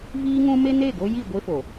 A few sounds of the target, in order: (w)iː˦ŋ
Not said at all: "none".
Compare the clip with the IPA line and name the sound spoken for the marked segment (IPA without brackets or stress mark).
v